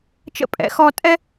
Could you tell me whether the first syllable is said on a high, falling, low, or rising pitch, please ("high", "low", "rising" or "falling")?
high